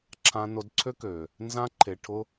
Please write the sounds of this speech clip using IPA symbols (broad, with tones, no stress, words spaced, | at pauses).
ǁʰã˧no˧d ǀʰø˦kø˨ | nzã˧ǃʰe˨ʈʰʊ˧